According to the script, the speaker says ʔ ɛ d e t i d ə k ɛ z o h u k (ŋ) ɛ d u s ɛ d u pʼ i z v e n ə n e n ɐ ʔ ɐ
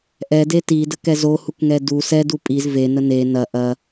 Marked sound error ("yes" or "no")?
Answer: no